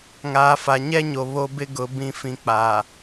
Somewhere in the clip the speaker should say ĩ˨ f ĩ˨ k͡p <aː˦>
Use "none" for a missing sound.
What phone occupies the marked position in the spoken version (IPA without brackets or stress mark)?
aː˨